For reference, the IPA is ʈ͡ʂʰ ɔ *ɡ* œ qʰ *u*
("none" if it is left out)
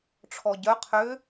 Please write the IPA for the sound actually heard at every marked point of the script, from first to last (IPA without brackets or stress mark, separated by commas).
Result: ɟ, ʏ